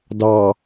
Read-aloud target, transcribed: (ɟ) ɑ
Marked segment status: incorrect: d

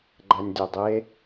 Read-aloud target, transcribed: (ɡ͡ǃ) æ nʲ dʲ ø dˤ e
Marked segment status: correct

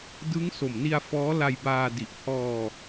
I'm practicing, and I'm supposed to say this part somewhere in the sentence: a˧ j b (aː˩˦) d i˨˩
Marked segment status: incorrect: aː˧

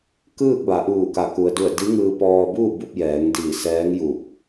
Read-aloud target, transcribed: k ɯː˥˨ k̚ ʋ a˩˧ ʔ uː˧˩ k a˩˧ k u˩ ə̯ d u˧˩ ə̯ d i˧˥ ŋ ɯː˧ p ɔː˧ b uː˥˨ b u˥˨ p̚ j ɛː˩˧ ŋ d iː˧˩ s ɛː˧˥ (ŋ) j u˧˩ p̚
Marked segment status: correct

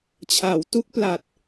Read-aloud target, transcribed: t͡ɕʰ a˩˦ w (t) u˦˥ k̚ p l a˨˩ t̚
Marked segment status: correct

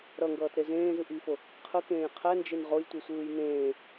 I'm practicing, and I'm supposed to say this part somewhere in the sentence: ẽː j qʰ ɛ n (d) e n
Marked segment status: incorrect: d͡ʒ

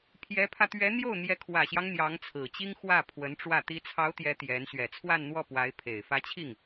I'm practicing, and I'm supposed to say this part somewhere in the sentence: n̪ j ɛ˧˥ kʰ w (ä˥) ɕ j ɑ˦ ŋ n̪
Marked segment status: incorrect: ä˨˩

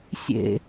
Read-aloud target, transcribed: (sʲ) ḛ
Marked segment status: correct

